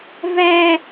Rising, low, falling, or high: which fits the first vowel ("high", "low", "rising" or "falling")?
high